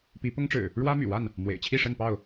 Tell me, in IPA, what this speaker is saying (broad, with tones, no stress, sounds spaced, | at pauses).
p i˨˦ p ʊ˦ ŋ ʈ͡ʂ ɻ̩˨˩ | ɻ w ä˦ m y̰˨˩ w a˥˨ n | m w ḛ˨˩ ɪ̯ t͡ɕʰ i˥˨ ʂ ə˥˨ n p ɑ˥˨ ʊ̯